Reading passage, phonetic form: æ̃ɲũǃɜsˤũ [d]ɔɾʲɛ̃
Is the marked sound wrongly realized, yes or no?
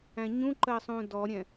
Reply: no